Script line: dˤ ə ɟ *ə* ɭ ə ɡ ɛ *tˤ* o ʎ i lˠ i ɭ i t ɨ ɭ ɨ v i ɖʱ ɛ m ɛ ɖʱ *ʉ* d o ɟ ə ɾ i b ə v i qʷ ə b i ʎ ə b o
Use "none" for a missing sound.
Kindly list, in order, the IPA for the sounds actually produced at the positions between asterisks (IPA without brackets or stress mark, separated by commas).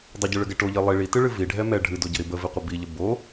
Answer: ɨ, ʈ, ɨ